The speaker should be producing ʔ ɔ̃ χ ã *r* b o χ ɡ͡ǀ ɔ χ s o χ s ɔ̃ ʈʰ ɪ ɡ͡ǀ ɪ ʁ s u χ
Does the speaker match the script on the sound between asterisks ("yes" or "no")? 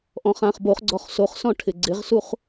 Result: no